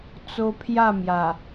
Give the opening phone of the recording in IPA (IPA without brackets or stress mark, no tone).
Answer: t͡s